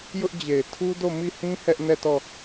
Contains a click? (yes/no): no